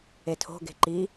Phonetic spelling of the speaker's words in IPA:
e tʰ o̤ ɡ e̤ ǃ i

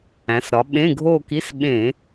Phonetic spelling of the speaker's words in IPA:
æ̃˩˧ s ɾ ɒ˩˧ ɓ ẽ˧˥˧ ɡʱ o˥˧ k i˧˥˧ s ɓ ẽ˧˩˧

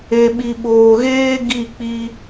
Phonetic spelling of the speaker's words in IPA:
e˨ ɓ i˨ ɓ oː˨ ɣ eː˦ ɡ i˦˨ k͡p i˧

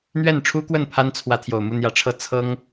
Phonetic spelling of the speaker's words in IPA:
n̪ ɥ ɛ˥˩ n ʈ͡ʂʰ u˥ k w ə˥˩ n pʰ a˥ n t͡sʰ w ä˧˥ t̪ʰ j o˨˩ ʊ̯ m u˥˩ n̪ j ä˧˥ ʈ͡ʂʰ ɤ˥˩ t͡sʰ ɤ˥ ŋ

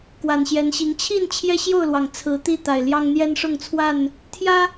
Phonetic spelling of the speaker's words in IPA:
k w a˨˩ n ɕ j ɛ˨˦ n ɕ i˨˦ ŋ t͡ɕʰ i˥˨ n t͡ɕʰ j ɛ˦ ɕ j o˥˨ ʊ̯ l w ɑ˩ ŋ t͡sʰ ɹ̩˨˦ t̪ i˥˨ t̪ a˨˩ ɪ̯ l j ɑ˦ ŋ n̪ j ɛ˦ n ʂ ʊ˥˨ ŋ t͡sʰ w a˥˨ n | t̪ʰ j ä˦

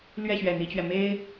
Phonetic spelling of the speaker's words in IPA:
l ɥ ɛ˥˩ ɕ ɥ ɛ˨˩ n̪ i˧˥ t͡ɕ ɥ ɛ˧ m e˥ ɪ̯

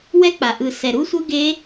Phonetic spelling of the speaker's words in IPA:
w ɛ˦˥ k͡p a˨˩ ʔ ɯ˨˩ s ɛ˨˩ ɾ u˦˥ sʷ ɯ˦˥ ɡ e˦˥

